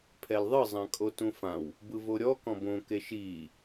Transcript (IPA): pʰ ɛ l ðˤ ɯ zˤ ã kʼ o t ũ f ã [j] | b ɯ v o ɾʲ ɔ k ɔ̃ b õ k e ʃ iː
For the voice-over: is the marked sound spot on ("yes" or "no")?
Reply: no